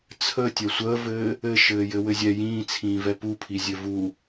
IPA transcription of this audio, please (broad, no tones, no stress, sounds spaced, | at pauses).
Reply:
t͡sʰ ə tʲ ɛ sʷ əː v ɘː | ɘ ʃ ɘː j ɘ w ɘ zʲ ɛ j ĩː t͡sʰ ĩː v ɛ p u pʰ i zʲ ɘ v u